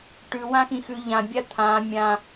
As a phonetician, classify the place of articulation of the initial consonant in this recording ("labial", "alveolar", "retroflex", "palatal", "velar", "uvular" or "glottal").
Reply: retroflex